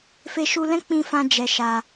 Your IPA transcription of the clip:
fe˧ʃu˧lɛ̃˦ k͡pĩ˦fã˦d͡ʒɛ˧ʃa˧

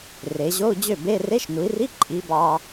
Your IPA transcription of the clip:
re˩˧ ʑo˧˥˧u̯d͡ʑø˥˩be˧˥˧ re˧˥˧ʃnu˩˧i̯ri˧˥˧ ǃʼi˩˧ bɑ˧

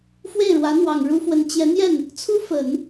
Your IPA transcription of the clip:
fwe˥˩ɪ̯ɻwä˧˥n̪wɑ˨˩ŋ ɻu˥fwə˧˥n t͡ɕjɛ˧˥n̪jɛ˥˩n | t͡sʰu˥fə˨˩˦n

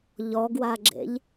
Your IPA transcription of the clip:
ʎɔɡwaɡ͡ǁḛʎ

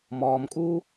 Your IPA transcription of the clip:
mɔːmkʼuː

